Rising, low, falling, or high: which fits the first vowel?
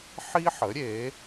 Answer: high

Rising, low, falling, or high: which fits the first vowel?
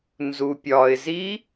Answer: low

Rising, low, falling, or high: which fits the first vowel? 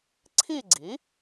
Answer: falling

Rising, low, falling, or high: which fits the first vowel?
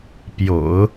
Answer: low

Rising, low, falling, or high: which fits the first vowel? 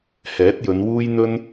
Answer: rising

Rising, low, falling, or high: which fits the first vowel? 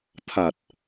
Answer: low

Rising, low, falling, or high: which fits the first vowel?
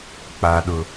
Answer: low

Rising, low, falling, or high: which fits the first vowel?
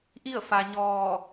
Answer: falling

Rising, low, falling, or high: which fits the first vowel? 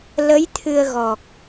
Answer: rising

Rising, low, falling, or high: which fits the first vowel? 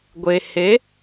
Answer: low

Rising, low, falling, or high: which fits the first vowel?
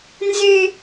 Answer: high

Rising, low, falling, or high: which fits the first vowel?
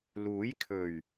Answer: rising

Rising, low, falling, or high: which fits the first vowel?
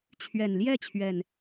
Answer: low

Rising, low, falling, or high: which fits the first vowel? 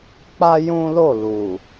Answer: high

